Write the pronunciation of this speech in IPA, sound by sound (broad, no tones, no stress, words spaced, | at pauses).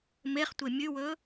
meχtʷe mʲʉwɵ